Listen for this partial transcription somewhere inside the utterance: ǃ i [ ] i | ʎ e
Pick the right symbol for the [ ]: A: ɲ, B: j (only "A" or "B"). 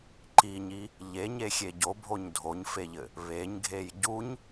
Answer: A